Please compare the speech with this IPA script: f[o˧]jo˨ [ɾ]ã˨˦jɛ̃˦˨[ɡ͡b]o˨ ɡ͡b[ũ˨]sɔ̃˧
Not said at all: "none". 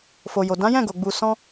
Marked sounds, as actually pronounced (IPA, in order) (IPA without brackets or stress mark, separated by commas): o˨, d, ɡ, u˨